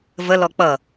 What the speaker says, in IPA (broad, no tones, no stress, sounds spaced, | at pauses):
v ə l ɔ k͡p ʌ